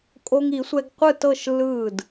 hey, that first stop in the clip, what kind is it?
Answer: ejective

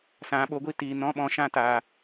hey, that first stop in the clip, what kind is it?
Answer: implosive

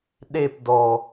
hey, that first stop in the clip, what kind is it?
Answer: implosive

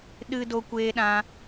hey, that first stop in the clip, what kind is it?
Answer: implosive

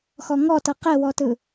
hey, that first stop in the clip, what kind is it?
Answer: plain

